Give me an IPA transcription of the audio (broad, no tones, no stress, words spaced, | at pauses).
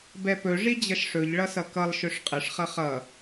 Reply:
bɛpɵ ʐid͡ʑʌʃʂɵʎ ɭʌsʌkʌlˠ ʃɵʂqʼəʂ χʌχʌ